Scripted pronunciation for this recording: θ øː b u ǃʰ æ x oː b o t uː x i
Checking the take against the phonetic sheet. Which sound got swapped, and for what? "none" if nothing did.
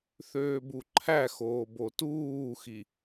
none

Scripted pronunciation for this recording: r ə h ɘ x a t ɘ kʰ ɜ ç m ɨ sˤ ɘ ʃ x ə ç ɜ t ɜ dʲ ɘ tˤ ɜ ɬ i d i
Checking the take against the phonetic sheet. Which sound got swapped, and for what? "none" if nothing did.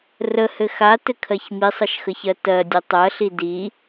ɨ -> i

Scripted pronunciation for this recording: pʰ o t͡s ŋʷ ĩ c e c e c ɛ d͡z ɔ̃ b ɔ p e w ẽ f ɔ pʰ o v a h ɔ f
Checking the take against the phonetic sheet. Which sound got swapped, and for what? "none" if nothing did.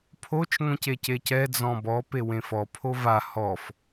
t͡s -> t͡ʃ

